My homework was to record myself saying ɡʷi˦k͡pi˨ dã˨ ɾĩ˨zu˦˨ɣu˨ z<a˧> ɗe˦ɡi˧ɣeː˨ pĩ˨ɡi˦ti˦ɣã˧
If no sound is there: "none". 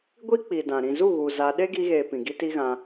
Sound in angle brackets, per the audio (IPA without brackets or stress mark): a˧